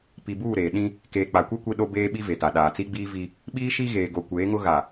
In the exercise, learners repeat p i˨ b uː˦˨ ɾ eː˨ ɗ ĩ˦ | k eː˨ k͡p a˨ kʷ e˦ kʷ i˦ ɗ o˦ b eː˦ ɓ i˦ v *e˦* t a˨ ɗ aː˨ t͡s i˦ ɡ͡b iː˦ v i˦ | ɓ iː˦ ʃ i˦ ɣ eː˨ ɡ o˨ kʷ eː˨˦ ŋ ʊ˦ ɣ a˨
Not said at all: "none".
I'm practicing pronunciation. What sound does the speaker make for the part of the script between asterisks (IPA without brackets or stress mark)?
e˨